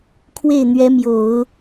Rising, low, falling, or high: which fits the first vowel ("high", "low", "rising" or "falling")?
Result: falling